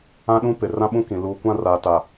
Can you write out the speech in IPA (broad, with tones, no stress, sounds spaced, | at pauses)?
ã˦ ɗ ũ˦ p ɪ˨ r ã˦ ɓ ũ˦ k ĩ˨ l uː˨ kʷ ã˦˨ r aː˨ t a˨